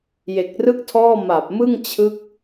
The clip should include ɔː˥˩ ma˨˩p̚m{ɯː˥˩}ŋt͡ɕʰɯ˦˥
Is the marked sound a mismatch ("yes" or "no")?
yes